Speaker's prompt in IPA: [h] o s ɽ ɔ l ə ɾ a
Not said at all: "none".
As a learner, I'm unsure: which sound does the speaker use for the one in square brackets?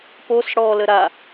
p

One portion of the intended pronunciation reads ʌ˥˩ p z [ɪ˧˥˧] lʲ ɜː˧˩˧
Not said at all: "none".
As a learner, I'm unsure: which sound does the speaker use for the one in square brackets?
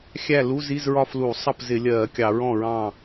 ɪ˧˩˧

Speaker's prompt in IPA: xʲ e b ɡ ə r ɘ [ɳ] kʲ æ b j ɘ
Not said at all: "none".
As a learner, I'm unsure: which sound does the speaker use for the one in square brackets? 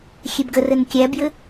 n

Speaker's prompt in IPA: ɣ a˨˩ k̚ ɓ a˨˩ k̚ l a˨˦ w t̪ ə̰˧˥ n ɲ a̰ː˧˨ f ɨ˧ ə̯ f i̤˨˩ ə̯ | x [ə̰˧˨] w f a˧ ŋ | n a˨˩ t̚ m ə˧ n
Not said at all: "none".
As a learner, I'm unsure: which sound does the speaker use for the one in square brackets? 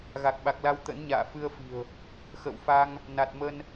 ə̰˧˨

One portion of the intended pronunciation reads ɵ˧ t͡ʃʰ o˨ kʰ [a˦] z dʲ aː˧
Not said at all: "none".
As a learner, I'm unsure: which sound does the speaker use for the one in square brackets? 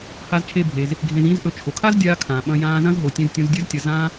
a˦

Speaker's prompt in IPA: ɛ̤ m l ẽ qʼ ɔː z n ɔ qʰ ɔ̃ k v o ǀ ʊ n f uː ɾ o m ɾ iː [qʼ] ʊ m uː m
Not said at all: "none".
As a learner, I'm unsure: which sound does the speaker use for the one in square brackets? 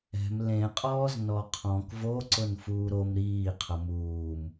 qʰ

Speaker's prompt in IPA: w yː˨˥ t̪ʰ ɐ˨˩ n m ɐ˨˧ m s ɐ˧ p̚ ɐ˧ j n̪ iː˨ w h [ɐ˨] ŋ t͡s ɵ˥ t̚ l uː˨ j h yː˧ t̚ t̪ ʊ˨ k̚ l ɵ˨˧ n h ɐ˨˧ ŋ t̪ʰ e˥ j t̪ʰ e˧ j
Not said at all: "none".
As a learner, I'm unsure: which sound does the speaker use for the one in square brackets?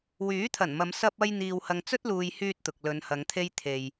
ɐ˨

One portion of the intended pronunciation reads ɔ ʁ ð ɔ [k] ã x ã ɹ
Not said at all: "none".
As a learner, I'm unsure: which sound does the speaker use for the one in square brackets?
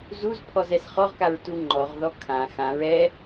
kʰ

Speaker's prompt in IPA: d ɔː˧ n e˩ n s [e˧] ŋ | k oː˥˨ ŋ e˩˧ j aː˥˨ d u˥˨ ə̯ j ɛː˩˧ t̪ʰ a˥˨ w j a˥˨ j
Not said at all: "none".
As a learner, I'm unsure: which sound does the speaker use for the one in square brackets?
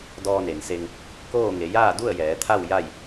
e˧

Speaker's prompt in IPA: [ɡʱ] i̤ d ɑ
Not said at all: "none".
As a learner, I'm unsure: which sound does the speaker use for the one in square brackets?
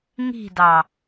ŋ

